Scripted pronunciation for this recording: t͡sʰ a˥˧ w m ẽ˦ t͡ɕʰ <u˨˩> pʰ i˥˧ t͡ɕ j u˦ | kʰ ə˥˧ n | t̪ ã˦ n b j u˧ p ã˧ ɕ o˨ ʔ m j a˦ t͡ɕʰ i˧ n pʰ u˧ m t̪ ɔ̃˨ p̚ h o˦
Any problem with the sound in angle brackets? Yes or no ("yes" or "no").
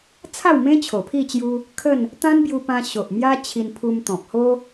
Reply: yes